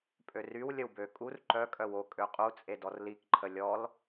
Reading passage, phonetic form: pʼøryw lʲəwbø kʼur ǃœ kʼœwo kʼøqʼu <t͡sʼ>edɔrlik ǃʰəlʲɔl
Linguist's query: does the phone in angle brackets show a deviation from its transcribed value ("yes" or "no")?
no